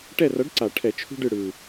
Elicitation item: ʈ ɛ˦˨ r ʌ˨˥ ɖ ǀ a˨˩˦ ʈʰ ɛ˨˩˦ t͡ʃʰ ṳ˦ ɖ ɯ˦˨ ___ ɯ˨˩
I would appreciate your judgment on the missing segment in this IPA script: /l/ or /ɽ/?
ɽ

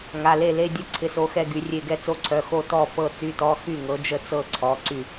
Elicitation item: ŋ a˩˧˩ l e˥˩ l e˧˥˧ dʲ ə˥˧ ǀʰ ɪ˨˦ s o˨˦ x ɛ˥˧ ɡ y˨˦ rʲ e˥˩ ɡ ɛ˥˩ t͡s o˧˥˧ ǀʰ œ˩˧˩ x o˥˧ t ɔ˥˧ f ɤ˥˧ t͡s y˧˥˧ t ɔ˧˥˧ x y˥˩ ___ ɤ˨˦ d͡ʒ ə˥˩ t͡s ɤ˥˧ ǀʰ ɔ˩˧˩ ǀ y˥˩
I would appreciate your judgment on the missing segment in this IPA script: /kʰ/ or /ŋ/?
ŋ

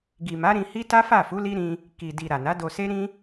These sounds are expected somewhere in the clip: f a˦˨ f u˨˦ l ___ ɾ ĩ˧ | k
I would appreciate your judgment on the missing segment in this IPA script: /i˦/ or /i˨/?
i˦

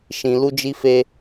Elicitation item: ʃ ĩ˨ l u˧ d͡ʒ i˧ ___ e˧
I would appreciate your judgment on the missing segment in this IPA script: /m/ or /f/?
f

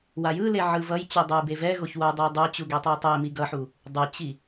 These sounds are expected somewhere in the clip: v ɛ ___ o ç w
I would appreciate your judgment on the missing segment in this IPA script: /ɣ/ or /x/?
ɣ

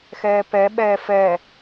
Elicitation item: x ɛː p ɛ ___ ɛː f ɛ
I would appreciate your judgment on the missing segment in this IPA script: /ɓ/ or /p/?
ɓ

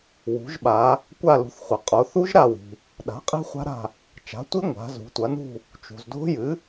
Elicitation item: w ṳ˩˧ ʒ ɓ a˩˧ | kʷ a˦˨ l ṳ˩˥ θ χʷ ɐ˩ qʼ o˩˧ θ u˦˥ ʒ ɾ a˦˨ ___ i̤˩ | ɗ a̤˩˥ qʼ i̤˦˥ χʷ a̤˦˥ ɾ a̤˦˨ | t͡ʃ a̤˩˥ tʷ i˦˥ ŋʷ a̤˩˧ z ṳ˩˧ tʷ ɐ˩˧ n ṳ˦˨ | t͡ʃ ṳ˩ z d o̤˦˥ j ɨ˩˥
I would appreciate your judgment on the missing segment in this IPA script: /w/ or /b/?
w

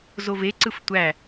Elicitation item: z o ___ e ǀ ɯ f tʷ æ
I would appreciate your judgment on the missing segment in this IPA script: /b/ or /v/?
v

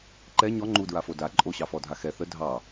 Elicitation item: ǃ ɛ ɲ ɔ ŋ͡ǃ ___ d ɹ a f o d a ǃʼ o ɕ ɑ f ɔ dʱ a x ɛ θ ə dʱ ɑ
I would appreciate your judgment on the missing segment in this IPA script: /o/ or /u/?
u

